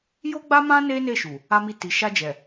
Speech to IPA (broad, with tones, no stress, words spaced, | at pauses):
jo˦ɡ͡ba˦mã˦ ne˦ne˦˨ʃu˨ | a˦mi˦˨ ti˨ʃa˧ d͡ʒɛ˨